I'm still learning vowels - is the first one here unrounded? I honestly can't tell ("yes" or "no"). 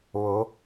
no